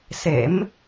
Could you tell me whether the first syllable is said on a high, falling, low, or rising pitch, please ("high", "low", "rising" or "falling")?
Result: rising